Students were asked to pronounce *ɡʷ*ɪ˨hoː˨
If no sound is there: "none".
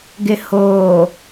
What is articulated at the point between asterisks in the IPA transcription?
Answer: ɡ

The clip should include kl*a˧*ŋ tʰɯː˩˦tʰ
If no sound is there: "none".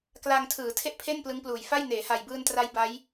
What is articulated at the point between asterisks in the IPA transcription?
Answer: a˧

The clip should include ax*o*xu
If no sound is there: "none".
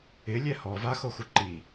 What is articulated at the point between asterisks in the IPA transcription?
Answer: o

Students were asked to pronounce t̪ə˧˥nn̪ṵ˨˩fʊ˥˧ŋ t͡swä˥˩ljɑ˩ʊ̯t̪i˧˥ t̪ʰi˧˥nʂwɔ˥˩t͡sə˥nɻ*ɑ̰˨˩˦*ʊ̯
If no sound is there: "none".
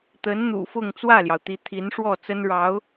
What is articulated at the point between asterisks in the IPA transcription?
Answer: ɑ˧˥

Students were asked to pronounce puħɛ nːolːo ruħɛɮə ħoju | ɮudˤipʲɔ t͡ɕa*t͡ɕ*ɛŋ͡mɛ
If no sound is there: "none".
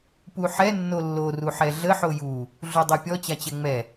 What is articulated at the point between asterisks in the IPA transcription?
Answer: t͡ɕ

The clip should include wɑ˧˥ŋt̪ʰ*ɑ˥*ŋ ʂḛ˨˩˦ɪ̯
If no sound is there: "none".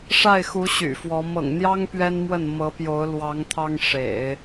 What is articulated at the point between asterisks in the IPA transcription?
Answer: ɑ˥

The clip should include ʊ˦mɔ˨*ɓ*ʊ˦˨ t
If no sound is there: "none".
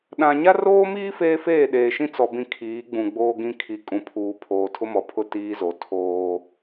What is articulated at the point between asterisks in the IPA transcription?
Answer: pʰ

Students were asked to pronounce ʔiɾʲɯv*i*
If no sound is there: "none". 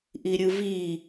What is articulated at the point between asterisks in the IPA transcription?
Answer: i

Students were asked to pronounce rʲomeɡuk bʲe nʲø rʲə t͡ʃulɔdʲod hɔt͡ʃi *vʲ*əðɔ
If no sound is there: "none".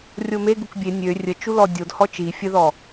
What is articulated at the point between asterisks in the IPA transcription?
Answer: fʲ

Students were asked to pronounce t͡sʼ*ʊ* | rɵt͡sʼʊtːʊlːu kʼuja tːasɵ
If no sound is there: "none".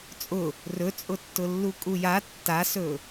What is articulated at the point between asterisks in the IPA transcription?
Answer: ʊ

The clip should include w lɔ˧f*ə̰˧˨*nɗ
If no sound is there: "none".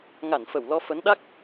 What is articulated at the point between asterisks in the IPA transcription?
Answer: ə˨˦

